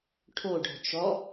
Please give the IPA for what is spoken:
ʈʰ o ɖ ɔ̤ t͡ʃ ɔ

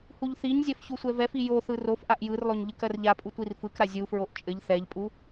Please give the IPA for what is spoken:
h u ʎ θ i ɲ zʲ ɜ f ç u sʷ ɛ v ɛ f i j o θ ɯ r o f ʔ a ʔ j ɯ r lˠ o ɲ ʎ ɯ k ɜ r ʎ a pʼ u tʷ i r f ɯ k ɾ a zʲ u f ɹ o ʔ t͡ʃʼ ɘ ʎ θ ɛ ʎ pʼ u

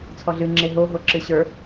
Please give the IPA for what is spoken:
t͡sʰ ɔ ɮ ɨ ŋ͡ǁ e ɦ o ɦ o ǁ ɨ ɕ ə˞

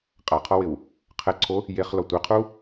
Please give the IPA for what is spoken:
qʼ a qʰ ɔ w ɪ w | qʰ ɛ ǀʰ o | j e χ l ɔ tʷ i qʰ u

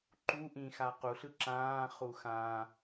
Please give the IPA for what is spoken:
ǃ u ʔ ĩ x a q u ɬ ɯ ǁ ãː χ u x ã

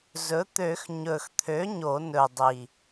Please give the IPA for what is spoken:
z ɵ˩˥ t̪ ø˨˩˦ x ɲ ɵ˨˩ x t̪ʰ ø˩˥ ɲ o˨˩˦ n ɵ˨˩ dˤ i˨˩

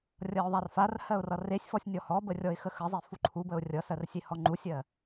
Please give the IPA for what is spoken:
rʲ ʌ ʊ̯ ðˤ a r f a r h ɜ ʊ̯ r ʌ r e sʲ f ɔ sʲ nʲ ɔ h ɔ b ə rʲ ɔ ɪ̯ x ə x ə zˤ e f u ǃʰ u b ə ʊ̯ rʲ ʌ s ɜ r sʲ e h ɔ ŋ͡ǃ u sʲ ɜ

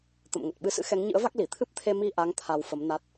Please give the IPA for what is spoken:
t̪ ə̰˧˨ m ŋ ə˨˩ t̚ ɓ ɨ˨˦ s ɨ̰˧˥ x ɛ˨˦ ŋ ɲ ɨ̰˧˥ ə̯ v a˦˥ k̚ l i˧˩ t̪ʰ ɨ˦˥ p̚ t̪ʰ e˧ m i˧ ʔ a˨˦ ŋ t̪ʰ a˧ w f ə˨˦ m n a˦˥ t̚

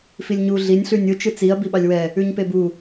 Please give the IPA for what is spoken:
f i lʲ ɲ u ɮ i nʲ ɬ ʉ nʲ ɯ t͡ʃ ɯ t͡s i ɐ̯ b i ɓ ɑ lʲ w ɛ | ʉ ɲ p e b u

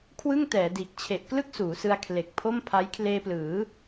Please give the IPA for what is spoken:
kʰ w ɯ˥˩ ŋ t ɛː˩˦ d iː˨˩ k̚ t͡ɕʰ e˨˩ ʔ k l ɯ˥˩ k̚ s uː˩˦ s ɯ˧ a̯ kʰ l e˨˩ k̚ pʰ o˥˩ m pʰ a˦˥ j kʰ l eː˧ p l ɯː˩˦

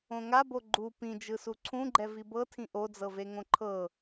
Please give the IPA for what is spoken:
õ ŋ a b o ɡ͡ǃ u p ĩ d͡ʒ ɯ s u ǀʰ ũ ɡ͡ǃ ɛ v i b ɤ tʰ ĩ ʔ o d͡z ɤ v e ŋ õ ǃʰ ɤ

